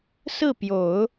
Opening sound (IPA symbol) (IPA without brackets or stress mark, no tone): s